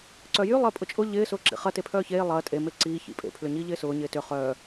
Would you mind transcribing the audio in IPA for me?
ǀ œ j y lˠ ɪː pʼ ʊ t͡ʃʼ ʊ ʎ ɪː s ʊː ǁ ḭ χ ɐ t e pʰ œː ç eː lˠ ɐː tʼ e m e ǀ iː ç ḭ pʼ ḛ pʰ l ʏ ɲ iː ʎ ɪː s ʊː ɲ ɪː t ʏ χ œː

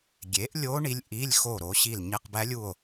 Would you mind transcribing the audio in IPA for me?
ɡʲ e˨˥ ʔ lʲ o˦˥ ɳ i˦˥ lʲ ʔ i˧˥˧ lʲ x o˦˨ ɾ o˨˥ ɕ i˦˨ l ɲ e˧˥˧ q b æ˦˥ lʲ u˦˨ o̯

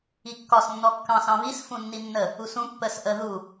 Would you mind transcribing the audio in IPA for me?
i kː ɒ s nː ɔ kː ɑ̃ s ɑ̃ β i s f ũ nː i nː ə | u s ũ pː ə s ʔ ə ð u

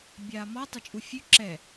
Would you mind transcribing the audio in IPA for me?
bʲ aː m ɔ tˤ ʏ t͡ʃʼ u fʲ ʉ ǁ ɛ

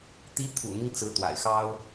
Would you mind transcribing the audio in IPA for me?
t̪ i˧˥ t̪ʰ ṵ˨˩ n̪ i˦ ŋ t͡s ɹ̩˧˥ t̪ w a̰˨˩ ɪ̯ x ɑ˥ ʊ̯

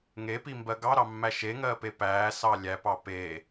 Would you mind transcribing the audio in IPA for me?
ŋ e p i m b ɜ ɡ ɑ ɾ ɑ mː æ ʃ e ŋ ɜː p e p æː s ɑ lʲ æ p ɑ p e

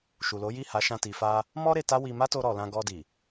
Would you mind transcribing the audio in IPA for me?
ʃ u˨ l o˨˦ j i˦˨ h a˨˦ ʃ ã˧ t i˨ f a˧ | m ɔ˦ ɾ e˧ t a˦ w i˧ m a˦ t o˧ ɾ ɔ˨ l ã˧ ɡ ɔ˧ d i˨

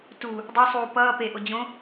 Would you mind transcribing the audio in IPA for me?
t u | dˤ o sˤ uː p ʌː p e ʔ o d͡ʑ õ

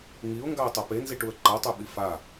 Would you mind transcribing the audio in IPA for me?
ŋ i ʊ̯ ŋ ɡ a ə̯ tˤ ɛ p e n z i ʈ u ə̯ ǃ a tˤ œ ɓ i f a

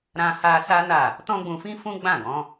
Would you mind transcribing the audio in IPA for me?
ɾ ã˦ h a˦ s a˦ n a˦˨ | t ɔ̃˦ ɡ͡b ũ˧ f ĩ˦ f ũ˦ ɡ͡b ã˦˨ ɡ ɔ̃˨˦

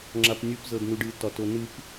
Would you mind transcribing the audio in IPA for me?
ŋ͡ǁ a p nʲ u p z ɤ d n u ɖ ɨ t ɒ t o n ɨ p

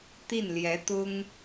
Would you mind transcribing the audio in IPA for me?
t̪ i˥˩ n l j ɛ˧˥ t̪ ʊ˥ ŋ

